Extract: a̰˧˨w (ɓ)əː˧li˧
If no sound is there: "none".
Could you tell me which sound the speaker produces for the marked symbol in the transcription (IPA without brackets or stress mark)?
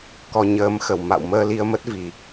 m